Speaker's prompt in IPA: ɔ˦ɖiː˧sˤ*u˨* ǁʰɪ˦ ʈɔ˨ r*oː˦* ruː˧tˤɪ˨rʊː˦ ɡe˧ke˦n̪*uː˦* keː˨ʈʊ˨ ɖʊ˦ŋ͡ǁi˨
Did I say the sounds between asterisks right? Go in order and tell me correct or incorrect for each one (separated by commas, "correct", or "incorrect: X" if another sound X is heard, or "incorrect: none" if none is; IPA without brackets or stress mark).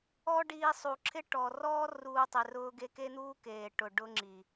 correct, incorrect: ɔː˦, correct